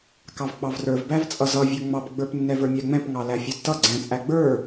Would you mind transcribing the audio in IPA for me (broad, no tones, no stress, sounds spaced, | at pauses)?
k ɑ v k͡p ɑ v r ə˞ v b æ v t͡sʼ ʌ z ʌ vʲ ə˞ ŋ͡m ɑ p ɡ͡b ə˞ p nː ɛ v ə˞ mʲ æ ŋ͡m ɛ̃ p ŋ ɑ l æ fʲ ʌ d t ʌ ɡ͡ǀ ɛ̃ t͡sʼ æ ɡ͡b ə˞